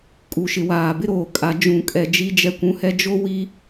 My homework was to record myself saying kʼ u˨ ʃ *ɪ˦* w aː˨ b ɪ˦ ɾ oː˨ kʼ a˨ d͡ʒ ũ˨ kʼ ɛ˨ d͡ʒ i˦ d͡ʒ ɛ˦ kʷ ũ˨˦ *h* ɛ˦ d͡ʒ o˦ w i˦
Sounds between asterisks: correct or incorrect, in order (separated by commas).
incorrect, correct